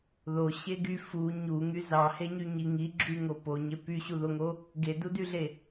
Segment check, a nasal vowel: absent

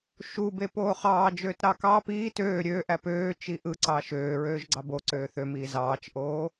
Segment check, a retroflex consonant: absent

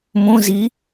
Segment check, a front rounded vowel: absent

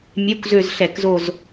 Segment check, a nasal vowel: absent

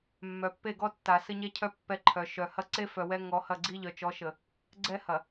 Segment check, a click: present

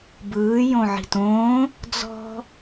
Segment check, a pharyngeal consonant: present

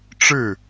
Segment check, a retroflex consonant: present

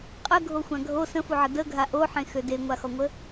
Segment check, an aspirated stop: absent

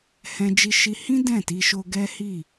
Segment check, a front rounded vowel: absent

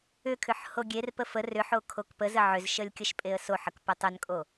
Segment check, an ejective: present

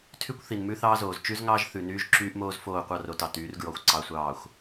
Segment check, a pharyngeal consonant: absent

